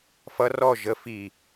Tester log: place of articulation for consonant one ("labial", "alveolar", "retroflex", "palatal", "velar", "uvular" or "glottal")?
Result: labial